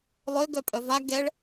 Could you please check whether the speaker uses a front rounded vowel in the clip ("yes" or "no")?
yes